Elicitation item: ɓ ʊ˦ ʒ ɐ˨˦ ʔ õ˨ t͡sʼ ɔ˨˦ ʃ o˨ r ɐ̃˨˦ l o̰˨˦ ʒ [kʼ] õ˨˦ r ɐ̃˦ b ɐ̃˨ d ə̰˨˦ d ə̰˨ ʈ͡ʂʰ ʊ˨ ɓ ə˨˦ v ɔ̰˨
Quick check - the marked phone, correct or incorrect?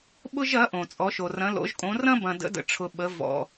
correct